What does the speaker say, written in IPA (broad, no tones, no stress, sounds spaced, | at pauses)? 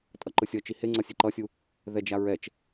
tʼ ʌ ǃ ɯ sʲ ʌ t͡ʃ i h e ŋ͡ǀ ʌ sʲ e ǃ ʌ sʲ u | ð ɛ d͡ʒ a ɹ ɛ t͡ʃ